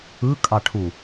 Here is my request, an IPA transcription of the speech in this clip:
ɯ kʼ ɑ ʈʰ u

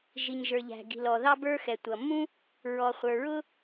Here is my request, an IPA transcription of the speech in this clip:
ʒ i˩ ɲ ʒ ə˞˩ ʎ æ̤˩ ɡ i̤˩ l ɔ˩ ð ɑ˥ b ə˞˥ x ɛ˩ tʷ ʌ˩ mː ũ˥ | ɹ ɔ˩ χʷ ə˞˩ ɹ ʊ˥

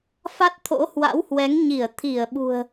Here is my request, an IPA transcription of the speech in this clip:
f a˦˥ t̚ t̪ʰ o̰˧˥ h w a̰˧˥ w h w ɛ˨˦ ŋ ɲ i˧˩ ə̯ t̪ʰ i˧˩ ə̯ ɓ ṳ˨˩ ə̯

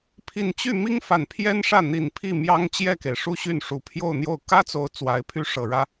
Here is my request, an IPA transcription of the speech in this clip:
pʰ i˨˩ n t͡ɕ y˥˩ m i˥ ŋ f a˨˩ n pʰ j ɛ˥ n ʂ ä˥˩ n̪ i˨˩ n pʰ i˥˩ m j ɑ˥ ŋ t͡ɕ j ɛ˥˩ k e˩ ɪ̯ ʂ u˥˧ ɕ y˥˩ n ʂ u˨˩ pʰ j o˥˧ ʊ̯ n̪ j o˥˩ ʊ̯ k ä˥ t͡s o˧˥ ʊ̯ t͡s w a˧˥ ɪ̯ pʰ y˥ ʂ ɤ˨˩ ɻ ä˥

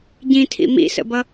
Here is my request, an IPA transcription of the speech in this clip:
ɟ ĩ tʰ ḭ m ḭ s ə̰ b ʌ

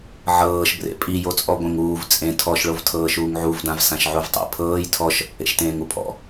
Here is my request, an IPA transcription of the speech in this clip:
ʕ ɤː ʃ b r ḛ pʼ i j o t͡sʼ ɔ ɡʷ ẽ ŋ uː v t͡sʼ ẽ tʰ ɔ ʃ ɭ o v tʰ ɤː ʃ uː ŋ ʕ u v d ã v s ã ʃ ʕ u v tˤ ḛ pʰ ɤː j tʰ ɔ ʃ | ḛ ʃ t ẽː ŋ u pʰ ɔ̰

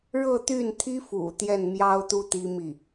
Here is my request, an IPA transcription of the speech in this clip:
ɻ ɤ˥˧ t̪ y˥˩ n t̪ʰ i˥ f ṵ˨˩ t̪ j ɛ˥˩ n m j ɑ˥ ʊ̯ t̪ u˥ t̪ i˥ m i˥˩

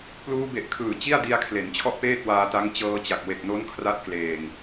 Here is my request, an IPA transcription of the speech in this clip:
p l uː˧ b e˨˩ ʔ kʰ ɯː˨˩ t͡ɕ i˥˩ a̯ d i˧ a̯ kʰ l e˩˦ n t͡ɕʰ ɔ˥˩ ʔ p eː˥˩ t̚ w aː˧ t a˦˥ ŋ t͡ɕ ɤː˧ t͡ɕ a˨˩ k̚ w e˨˩ k̚ n o˦˥ n kʰ r a˦˥ t̚ k l eː˨˩ ŋ

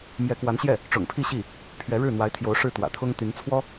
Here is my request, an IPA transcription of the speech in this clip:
m j ɛ˧˥ k w a˧˥ n ɕ j ɛ˥˩ | ʈ͡ʂ ʊ̰˨˩ ŋ pʰ i˥˧ ɕ i˥˩ | pʰ ɥ ɛ˧˥ ɻ ɻ̩˥˩ n̪ w a˧˥ ɪ̯ t̪ʰ j o˧˥ ʊ̯ ʂ ɻ̩˥˩ t̪ w ä̰˨˩ t̪ʰ ʊ˥ ŋ t̪ y˧˥ n t͡sʰ w ɔ˥

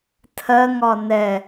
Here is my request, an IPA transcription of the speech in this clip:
tʰ ɜ ŋ ɒ n ɛ

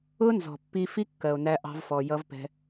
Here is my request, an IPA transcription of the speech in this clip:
ʊ˦ n z ɔ̤˨ pː i˧ f i˦ kː ɜ˨ o̯ n æ˦ ʔ ɑ̤˦ v f ɔ˧ j ʌ˦ v p ɛ̤˦

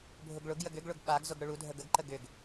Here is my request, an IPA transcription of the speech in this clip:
bʱ ʊ ɡ ɭ ʊ ɡ j ə ɡ ʏ ɡ ɭ ʊ ɡ ɓ a ɡ z ʊ ɡ ɽ ʊ ɭ u dʱ ə ɡ ə ɡ ǃ ə ɡ ʏ ɡ

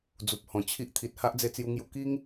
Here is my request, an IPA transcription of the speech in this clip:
d͡z u˨ p̚ h ɔ̃˨˩ t͡ɕʰ i˦ ʔ t̪ʰ i˨ t̚ h a˦ ʔ d͡z e˧ t͡s j u˧ ŋ j u˧ k i˦ ŋ

